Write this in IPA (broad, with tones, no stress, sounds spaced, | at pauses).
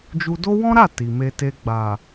d͡ʒ u˧ d o˦ w ɔ̃˦ ɾ a˦˨ t i˨ m e˧ t e˧ ɡ͡b a˨